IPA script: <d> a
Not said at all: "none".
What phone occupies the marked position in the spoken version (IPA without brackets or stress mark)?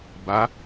b